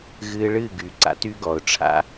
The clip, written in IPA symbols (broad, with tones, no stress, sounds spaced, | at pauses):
ɣ ɨː˧ ɭ ɨ˦˨ ɡ y˨ ǀ a̰˧ t y˧ ɡ ɔ˨ ʊ̯ ʈ͡ʂʰ a̰˦